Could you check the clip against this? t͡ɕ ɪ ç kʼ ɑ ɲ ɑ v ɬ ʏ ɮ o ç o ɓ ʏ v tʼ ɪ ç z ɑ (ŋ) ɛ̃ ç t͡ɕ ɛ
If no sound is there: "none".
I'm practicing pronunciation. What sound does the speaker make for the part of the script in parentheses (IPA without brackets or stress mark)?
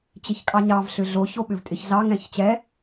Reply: ŋ